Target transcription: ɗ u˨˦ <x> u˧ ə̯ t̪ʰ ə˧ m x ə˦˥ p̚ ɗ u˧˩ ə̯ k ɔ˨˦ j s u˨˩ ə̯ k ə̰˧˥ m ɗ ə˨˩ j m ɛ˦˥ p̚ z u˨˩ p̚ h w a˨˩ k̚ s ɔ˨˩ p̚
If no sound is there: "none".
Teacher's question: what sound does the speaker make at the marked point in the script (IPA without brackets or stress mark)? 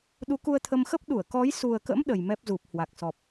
k